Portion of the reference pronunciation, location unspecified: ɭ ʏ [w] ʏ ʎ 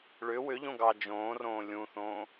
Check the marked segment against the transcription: correct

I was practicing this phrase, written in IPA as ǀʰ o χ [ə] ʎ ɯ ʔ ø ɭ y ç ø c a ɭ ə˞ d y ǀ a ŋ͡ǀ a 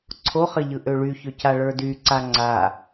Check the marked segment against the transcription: correct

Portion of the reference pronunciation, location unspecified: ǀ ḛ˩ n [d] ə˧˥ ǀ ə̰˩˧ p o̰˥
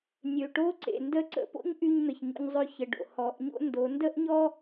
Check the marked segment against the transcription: correct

